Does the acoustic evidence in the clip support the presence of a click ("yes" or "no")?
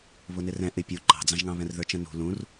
yes